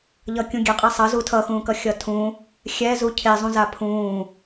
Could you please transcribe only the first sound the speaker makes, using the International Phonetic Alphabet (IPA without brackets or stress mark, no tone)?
ʎ